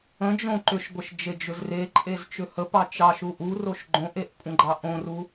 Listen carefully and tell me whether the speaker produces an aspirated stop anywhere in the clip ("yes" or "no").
no